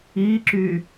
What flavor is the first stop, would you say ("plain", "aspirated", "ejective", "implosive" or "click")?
click